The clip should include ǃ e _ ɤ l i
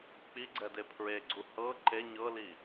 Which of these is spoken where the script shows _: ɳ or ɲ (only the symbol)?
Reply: ɲ